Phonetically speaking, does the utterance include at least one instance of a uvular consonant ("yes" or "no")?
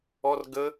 no